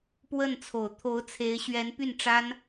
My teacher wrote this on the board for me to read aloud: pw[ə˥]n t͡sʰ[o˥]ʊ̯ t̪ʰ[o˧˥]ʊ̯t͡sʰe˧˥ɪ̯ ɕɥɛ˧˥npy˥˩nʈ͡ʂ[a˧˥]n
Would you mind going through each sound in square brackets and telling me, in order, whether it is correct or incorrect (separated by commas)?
incorrect, incorrect, correct, incorrect